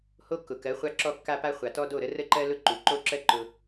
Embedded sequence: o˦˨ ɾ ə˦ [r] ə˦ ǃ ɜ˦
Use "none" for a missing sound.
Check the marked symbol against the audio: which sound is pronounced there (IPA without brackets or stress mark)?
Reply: r